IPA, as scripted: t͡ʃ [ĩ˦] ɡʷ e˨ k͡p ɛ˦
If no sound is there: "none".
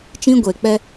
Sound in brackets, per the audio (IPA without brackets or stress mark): ĩ˦